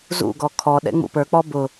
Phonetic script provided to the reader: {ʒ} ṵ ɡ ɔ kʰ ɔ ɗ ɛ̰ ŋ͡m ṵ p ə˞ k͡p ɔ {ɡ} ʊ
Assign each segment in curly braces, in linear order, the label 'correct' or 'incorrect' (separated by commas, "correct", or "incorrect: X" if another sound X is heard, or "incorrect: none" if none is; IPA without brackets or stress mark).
incorrect: z, incorrect: b